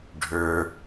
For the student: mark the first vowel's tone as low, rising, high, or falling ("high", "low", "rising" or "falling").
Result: low